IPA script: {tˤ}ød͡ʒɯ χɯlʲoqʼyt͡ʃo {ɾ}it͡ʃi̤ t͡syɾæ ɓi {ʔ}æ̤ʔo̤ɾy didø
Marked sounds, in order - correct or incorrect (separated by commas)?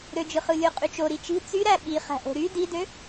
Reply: incorrect, correct, incorrect